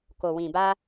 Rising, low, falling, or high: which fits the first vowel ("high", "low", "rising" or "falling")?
low